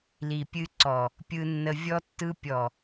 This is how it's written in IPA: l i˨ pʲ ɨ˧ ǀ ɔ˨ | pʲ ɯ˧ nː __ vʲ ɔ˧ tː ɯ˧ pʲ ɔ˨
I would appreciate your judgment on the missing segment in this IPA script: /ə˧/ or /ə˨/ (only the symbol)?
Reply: ə˧